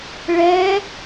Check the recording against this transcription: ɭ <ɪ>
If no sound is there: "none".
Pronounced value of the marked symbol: ɛ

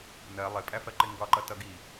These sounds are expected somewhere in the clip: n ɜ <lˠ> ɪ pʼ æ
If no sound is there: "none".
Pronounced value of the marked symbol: lˠ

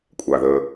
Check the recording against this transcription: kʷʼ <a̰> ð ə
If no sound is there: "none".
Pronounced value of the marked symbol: a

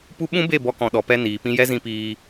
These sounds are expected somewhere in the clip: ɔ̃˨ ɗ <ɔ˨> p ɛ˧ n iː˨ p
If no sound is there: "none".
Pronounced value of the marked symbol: ɔ˨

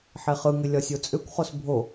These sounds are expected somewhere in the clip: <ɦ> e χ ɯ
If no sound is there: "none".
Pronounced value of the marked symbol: ħ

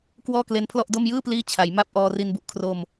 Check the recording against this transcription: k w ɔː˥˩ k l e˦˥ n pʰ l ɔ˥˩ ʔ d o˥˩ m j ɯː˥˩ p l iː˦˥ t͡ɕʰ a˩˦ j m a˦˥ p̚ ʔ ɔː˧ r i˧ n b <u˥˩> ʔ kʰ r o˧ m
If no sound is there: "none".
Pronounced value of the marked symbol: u˨˩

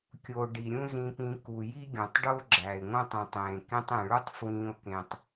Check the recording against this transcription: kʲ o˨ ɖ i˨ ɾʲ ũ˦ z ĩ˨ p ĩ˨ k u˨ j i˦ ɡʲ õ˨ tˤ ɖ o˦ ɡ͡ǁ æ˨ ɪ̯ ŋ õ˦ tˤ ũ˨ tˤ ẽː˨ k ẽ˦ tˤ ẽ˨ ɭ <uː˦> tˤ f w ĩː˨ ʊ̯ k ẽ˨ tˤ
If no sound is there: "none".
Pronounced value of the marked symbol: u˦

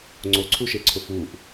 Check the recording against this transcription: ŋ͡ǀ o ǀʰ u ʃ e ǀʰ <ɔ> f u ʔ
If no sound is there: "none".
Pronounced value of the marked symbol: ʊ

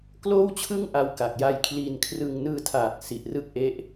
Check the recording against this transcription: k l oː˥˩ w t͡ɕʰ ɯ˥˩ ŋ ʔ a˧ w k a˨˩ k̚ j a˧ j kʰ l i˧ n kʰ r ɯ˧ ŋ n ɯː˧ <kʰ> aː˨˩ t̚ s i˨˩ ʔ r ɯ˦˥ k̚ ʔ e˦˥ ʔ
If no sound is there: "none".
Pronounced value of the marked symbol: tʰ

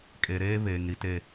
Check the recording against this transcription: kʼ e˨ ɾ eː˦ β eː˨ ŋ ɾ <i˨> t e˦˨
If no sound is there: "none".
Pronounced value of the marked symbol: i˨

